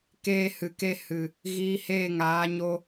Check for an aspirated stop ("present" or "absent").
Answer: absent